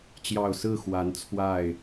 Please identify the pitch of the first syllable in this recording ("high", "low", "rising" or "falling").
low